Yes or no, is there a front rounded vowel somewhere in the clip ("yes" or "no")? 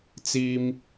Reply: no